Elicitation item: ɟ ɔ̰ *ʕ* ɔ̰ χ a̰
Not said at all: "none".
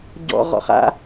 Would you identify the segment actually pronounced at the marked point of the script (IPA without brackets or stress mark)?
ʁ